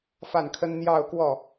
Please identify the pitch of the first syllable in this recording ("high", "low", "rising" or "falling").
falling